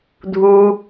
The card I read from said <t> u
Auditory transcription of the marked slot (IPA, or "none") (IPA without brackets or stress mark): dʱ